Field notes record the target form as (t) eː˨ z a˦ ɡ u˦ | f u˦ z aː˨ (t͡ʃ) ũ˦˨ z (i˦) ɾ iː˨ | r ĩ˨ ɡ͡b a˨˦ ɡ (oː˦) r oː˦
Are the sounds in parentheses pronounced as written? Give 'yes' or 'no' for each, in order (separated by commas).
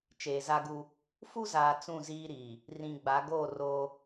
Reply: no, no, no, no